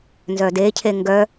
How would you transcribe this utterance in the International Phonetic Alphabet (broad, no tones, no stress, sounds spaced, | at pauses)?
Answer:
n z œ d e cʰ e ŋ ɡ œ